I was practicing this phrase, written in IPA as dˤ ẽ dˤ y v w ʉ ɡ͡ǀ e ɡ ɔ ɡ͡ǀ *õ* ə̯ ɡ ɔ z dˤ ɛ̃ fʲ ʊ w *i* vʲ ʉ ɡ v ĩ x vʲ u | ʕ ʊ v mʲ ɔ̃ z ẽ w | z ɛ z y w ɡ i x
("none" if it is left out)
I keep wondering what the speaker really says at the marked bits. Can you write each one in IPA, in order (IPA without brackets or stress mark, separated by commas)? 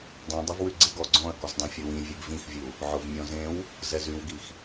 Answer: ɔ̃, ĩ